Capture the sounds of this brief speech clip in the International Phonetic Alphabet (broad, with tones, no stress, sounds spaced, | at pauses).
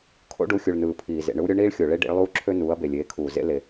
kʰ o̰˦ ɖ u˩˧ xʲ u˩ ɭ n ɯː˩ pʰ iː˩ z ḛ˩ ɳ ɯ˦ w ɾʲ o˦ ɳ iː˦ ɭ xʲ o˩ ɭ e˦ ɖ ḭ˩˧ ɭ lˠ uː˦ ǁʰ ø˦ n uː˩˧ ɐ̯ b e˩ lʲ eː˩˧ kʰ uː˩ z ḛ˦ l e˩